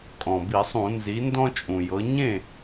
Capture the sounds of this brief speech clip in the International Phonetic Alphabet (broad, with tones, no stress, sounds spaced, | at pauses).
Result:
kʼ ɔ̃˩ b i˧˩˧ sˤ ũ˧˩˧ n z i˩˧ n d ɔ̃˦ t͡ʃʼ ũ˩ j ɤ˩˧ ɲ ẽ˥˩